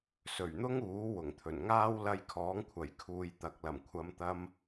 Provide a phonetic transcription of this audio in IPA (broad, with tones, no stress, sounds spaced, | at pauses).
s ɵ˨˩ ɥ n̪ ʊ˥ ŋ uː˨˥ w ʊ˨˩ ŋ t̪ʰ ɵ˨˩ n ŋ aː˥ w l ɐ˧ j kʰ ɔː˨˥ ŋ kʷʰ ɐ˨˩ j kʰ uː˨ j t̪ ɐ˨ k̚ l ɐ˨˩ m kʷʰ ɐ˨˧ m t̪ ɐ˧ m